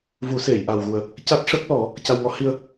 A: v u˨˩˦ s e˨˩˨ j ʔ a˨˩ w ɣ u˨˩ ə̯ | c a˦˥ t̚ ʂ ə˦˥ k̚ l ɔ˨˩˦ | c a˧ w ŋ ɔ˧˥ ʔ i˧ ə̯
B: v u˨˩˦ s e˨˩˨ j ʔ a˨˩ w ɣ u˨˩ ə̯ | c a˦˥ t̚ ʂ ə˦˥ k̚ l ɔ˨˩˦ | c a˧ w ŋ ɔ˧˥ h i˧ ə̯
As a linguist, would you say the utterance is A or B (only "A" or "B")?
B